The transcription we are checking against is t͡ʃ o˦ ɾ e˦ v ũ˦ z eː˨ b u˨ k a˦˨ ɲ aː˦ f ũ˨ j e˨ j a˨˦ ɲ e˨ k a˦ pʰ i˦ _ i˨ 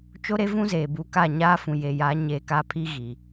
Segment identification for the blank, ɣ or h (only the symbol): ɣ